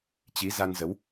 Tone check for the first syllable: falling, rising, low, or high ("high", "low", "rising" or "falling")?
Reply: rising